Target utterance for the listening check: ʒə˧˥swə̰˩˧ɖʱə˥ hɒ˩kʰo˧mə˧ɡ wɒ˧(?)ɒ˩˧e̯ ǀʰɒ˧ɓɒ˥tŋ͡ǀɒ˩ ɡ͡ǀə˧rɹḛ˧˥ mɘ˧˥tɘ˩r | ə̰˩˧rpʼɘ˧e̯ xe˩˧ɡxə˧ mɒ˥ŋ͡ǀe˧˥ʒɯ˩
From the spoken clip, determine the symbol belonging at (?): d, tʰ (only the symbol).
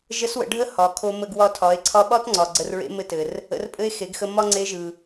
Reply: tʰ